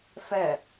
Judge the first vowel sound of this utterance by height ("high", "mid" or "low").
mid